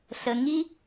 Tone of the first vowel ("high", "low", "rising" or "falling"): low